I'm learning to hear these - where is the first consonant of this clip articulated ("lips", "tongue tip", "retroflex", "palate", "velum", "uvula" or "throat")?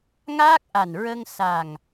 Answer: velum